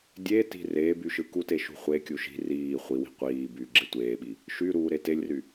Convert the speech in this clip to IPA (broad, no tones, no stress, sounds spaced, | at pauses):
dʲ e t i̤ r eː b y ʃ ɯ k u t e ʃ ṳ χʷ e kʲ u ʃ i̤ r iː χʷ i w i̤ qʷ iː b yː ɡ͡ǁ e tʷ eː ɓ i | ʃ y ɾ uː ɾ e t e lʲ r y